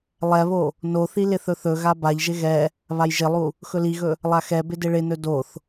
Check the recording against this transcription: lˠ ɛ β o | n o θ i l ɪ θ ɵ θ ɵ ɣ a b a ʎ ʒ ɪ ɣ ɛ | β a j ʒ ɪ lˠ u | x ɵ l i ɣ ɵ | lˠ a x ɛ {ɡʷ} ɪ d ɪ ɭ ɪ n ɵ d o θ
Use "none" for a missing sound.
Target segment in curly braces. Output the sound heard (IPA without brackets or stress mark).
b